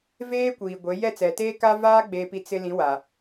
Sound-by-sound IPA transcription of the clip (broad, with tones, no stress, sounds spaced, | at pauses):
v eː˦ kʷ iː˨ ɡʷ e˨˦ j ɛ˦˨ t͡s ɛ˨ t eː˦ k a˦ v aː˦ ɡ͡b eː˨ p i˨ t͡s ɪ˦ l ĩ˨˦ w a˨